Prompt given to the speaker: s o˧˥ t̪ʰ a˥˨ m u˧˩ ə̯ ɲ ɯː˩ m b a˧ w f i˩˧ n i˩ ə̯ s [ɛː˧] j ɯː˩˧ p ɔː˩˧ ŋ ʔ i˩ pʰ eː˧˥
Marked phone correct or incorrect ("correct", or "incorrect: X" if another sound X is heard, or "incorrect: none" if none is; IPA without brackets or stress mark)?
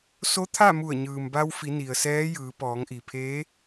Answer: incorrect: ɛː˧˥